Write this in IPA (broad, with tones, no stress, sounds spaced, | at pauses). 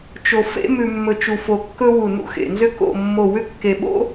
t͡ʃ o˧ f ḛ˥ m ʉ˧ mː ɵ˧ t͡ʃ u˧ f o˧ kː ɵ˥ w u˧˩ n ṵ˥ x ḛ˩˧ n z ʏ˥ k o̰˥˧ mː o˥˧ w ʏ˥ kː e˧ ɓ o̰˥